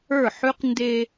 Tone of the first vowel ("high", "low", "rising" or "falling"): falling